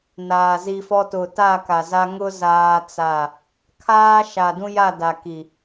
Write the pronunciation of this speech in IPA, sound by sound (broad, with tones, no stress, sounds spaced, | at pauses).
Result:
n aː˨ z i˦ f ɔ˦ t ʊ˨ t a˦˨ k a˨ z a˦ ŋ ʊ˦ z aː˦ t͡s a˦˨ | kʰ aː˦ ʃ a˨ d ũ˦ j a˦˨ d a˨ k i˨